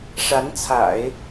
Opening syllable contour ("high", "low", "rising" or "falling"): rising